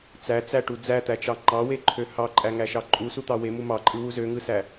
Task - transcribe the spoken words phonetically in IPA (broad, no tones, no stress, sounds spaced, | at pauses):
t͡s æ t͡s æ ʈ u d͡z æ t̪ æ t͡ʃ ɑ ŋ͡ǃ ɑ w e ǃʰ ø h ɑ ǃʼ æ ŋ æ ʃ ɑ ǃʼ u s u t̪ ɑ w e m u m ɑ ǃʼ ɯ w u z ø ŋ ɯ s æ